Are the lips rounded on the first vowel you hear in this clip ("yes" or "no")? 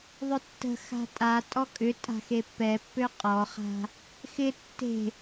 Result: yes